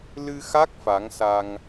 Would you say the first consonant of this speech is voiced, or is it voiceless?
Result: voiced